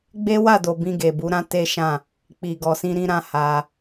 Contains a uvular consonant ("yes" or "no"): no